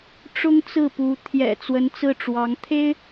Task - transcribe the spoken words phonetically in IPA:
ʈ͡ʂ ʊ˥ ŋ t͡s ɹ̩˥˩ p u˧˥ t̪ʰ j ɛ̰˨˩ t͡s w ə˧˥ n t͡s ɹ̩˥˩ ʈ͡ʂ w ɑ˧˥ ŋ t̪ʰ e˥ ɪ̯

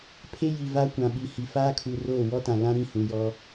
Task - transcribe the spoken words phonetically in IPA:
pʰ e˦ j i˨ v a˦ kʷ ã˨ ɓ i˨ h i˨ f aː˦ kʰ u˨ r oː˦˨ w ɔ˦ t ã˨ l ã˦ ɾ ĩ˦˨ h ũ˨ j ɔ˦

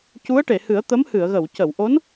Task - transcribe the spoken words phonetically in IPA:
c u˧˥ ə̯ ʈ e˨˩˨ h ɨ˨˩˦ ə̯ t̪ ə˧˥ m h ɨ˨˩˨ ə̯ ɣ ə˨˩˨ w c ə˨˩˨ w ʔ o˧˥ n

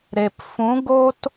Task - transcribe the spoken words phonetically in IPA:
ɾ e˨ p f ũ˨˦ ɡ o˦ t

